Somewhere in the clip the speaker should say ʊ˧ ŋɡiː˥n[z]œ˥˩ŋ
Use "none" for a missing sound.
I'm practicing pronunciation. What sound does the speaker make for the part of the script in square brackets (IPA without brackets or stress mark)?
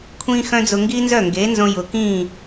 z